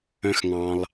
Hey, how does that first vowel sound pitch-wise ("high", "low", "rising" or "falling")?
low